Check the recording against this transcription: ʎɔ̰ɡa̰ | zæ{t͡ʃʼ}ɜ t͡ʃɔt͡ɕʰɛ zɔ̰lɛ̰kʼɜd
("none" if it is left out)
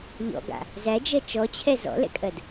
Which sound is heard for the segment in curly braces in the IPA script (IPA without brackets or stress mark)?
d͡ʒ